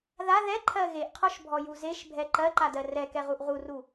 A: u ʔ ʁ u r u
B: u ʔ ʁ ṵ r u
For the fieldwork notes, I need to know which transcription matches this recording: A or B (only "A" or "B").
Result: A